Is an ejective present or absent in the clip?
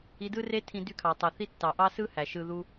absent